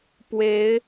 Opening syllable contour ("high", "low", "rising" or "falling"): rising